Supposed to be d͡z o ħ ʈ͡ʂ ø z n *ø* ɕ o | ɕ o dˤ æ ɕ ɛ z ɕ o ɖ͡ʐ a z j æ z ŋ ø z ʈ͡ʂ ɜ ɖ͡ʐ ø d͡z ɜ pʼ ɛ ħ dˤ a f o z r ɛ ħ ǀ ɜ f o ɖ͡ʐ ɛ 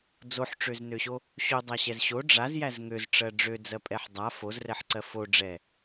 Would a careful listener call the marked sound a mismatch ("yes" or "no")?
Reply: no